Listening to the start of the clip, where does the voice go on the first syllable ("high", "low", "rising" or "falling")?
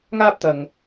high